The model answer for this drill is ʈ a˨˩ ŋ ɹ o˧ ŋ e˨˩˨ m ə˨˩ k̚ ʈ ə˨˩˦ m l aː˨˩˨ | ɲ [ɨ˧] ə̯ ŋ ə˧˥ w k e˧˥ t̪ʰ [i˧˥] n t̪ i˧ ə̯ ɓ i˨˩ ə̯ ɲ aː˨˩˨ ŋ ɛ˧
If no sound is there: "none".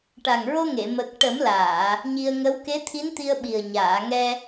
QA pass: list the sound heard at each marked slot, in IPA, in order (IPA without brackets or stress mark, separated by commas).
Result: i˧, i˧˥